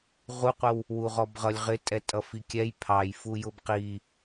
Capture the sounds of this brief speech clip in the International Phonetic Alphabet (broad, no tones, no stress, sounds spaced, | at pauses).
ʁ u qʷ ə w | w u ʁ ɔ b ʁ ʌ lʲ ʁ ɪ tʼ ɛ tʼ ʌ f i kʲ ɛ j pʰ ɑ j f u j ʊ b q i